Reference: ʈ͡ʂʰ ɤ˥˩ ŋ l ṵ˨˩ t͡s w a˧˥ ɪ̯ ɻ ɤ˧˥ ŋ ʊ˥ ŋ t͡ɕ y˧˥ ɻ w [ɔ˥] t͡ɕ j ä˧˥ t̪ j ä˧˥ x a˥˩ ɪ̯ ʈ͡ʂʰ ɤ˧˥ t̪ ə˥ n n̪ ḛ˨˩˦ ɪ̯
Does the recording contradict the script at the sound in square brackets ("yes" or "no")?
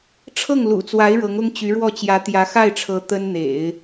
yes